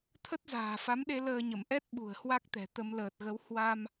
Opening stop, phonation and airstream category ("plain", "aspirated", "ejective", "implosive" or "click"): aspirated